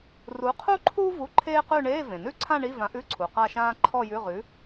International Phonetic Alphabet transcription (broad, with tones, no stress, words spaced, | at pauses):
ru˨˥ qʰu˥ǃʰu˥ vu˧˥˧ǃʰeː˥qʉ˥˧ ɳeː˧˥˧vẽ˩nʉ˥˧ǀʰã˥˧ ɳi˧˥˧vã˨˥ʔʉ˧˥˧ǀʰu˩ qa˥˧ʃãː˥ ǃʰɔ˥˧jʉ˧˥˧ʁʉ˨˥